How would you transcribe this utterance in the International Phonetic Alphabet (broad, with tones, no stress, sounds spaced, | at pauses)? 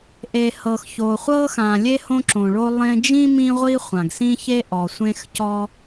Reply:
ʔ e˩ h ɤ˩ x ç o˩ χʷ ɤ˥ x ã˩ lʲ e˥ h õ˥ ǁ õ˩ ɭ o˥ lˠ ẽ˥ d͡ʒ ĩ˥ m ĩ˥ ʁʷ i˥ χʷ ã˩ ɡ s ĩ˥ ç e˥ ʔ ɔ˩ sʷ ẽ˥ x c ɔ˥